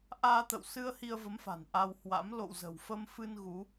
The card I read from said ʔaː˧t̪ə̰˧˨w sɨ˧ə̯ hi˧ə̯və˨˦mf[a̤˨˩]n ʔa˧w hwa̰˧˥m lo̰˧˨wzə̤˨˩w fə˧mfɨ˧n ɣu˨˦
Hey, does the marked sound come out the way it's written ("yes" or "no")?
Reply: yes